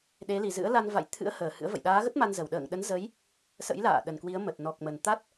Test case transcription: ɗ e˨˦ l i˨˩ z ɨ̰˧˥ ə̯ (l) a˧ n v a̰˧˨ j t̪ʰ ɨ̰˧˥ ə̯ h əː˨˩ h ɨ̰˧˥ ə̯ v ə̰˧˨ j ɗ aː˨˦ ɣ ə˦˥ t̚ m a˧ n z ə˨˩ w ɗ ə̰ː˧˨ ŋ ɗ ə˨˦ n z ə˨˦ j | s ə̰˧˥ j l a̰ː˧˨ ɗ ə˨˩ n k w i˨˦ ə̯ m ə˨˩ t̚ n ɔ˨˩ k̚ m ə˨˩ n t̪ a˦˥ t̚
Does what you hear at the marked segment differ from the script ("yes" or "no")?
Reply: no